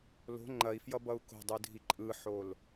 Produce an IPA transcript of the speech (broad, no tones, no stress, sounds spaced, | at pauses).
l o̤ ŋ͡ǃ ɐ i̯ f j ʌ b ʌ u̯ k o̤ dˤ ɯ dʱ i ǃʼ ɯ ħ o l